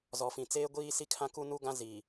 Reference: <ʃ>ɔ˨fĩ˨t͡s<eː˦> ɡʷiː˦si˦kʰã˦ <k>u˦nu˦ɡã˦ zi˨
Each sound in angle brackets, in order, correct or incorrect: incorrect: z, correct, correct

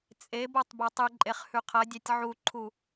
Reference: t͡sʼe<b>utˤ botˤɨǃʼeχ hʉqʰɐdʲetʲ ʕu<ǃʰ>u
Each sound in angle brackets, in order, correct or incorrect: correct, correct

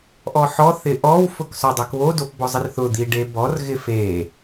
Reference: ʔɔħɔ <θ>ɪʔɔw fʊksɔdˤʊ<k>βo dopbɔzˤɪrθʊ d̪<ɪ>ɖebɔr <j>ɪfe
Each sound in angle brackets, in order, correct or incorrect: correct, correct, incorrect: i, incorrect: ɣ

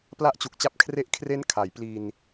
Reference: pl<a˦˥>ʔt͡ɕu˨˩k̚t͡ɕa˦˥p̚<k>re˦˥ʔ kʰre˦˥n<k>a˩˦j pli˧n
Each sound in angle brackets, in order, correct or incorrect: correct, incorrect: kʰ, incorrect: kʰ

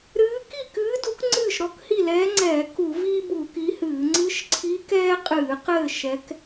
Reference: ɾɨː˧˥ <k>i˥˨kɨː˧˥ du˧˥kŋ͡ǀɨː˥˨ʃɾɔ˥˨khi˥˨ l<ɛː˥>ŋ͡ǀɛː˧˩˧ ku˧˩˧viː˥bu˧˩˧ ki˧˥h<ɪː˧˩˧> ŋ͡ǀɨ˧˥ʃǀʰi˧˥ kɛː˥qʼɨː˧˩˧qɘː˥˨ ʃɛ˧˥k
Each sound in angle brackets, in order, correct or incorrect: correct, incorrect: ɛː˧˥, incorrect: ɨː˧˩˧

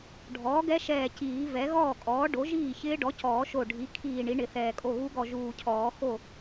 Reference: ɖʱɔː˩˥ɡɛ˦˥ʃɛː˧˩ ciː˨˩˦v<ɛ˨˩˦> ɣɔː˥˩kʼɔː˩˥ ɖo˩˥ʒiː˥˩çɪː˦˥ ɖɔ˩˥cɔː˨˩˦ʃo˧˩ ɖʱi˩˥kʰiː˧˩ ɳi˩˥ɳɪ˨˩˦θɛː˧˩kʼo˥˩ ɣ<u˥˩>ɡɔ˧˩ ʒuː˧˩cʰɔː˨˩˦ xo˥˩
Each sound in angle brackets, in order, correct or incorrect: incorrect: ɛ˩˥, incorrect: u˦˥

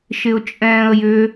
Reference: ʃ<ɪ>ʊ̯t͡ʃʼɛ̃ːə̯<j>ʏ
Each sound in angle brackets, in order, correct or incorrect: correct, correct

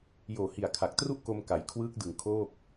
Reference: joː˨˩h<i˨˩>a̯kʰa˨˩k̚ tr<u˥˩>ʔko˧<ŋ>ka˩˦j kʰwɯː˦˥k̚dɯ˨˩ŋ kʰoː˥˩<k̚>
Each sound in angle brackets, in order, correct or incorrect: correct, correct, incorrect: m, correct

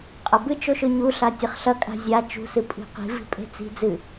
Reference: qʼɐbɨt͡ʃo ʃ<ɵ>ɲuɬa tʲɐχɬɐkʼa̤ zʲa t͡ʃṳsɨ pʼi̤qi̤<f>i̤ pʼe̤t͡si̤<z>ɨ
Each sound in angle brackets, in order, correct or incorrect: correct, incorrect: v, incorrect: d͡z

